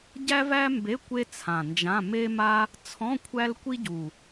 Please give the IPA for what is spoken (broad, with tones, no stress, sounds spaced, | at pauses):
ɟ æ˥ v æ˥ m b e˧˥˧ kʷ e˥ t͡sʰ ã˨˩ n d͡ʒ ã˧˥˧ m e˥ m a˥ | t͡sʰ ɔ̃˧˥˧ kʷʰ æ˥ l kʷ i˥ ɟ u˨˩